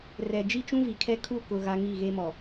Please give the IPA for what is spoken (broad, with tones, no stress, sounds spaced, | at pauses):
r ɛ˨ d͡ʒ i˦ t͡ʃ ũ˦ v i˨ kʰ ɛ˦ kʰ u˦˨ k ʊ˨ ɣ a˦ ŋ i˦˨ ɣ e˦ m ɔ˨